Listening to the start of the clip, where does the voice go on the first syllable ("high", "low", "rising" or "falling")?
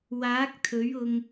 rising